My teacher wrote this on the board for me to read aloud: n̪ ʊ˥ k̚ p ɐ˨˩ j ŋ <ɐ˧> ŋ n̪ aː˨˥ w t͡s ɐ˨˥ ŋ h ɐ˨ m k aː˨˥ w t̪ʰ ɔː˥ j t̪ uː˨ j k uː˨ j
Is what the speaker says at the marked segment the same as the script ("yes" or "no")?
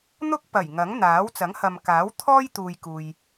no